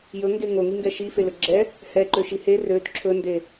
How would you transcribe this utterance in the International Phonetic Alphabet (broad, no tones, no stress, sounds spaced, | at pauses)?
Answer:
j ɵ ŋ ɡ e ŋ o ŋ i ŋ ɡ ɛ ʃ i f e l ɵ ɡ͡ǁ ɛ | h ɛ ǃ ø ʃ i h e r ø d ǁʰ ɵ n d e